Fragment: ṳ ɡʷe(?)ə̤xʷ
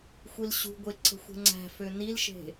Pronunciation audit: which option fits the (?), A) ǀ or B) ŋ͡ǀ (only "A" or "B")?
A